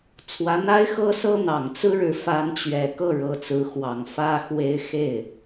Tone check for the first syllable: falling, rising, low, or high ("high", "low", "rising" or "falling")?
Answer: rising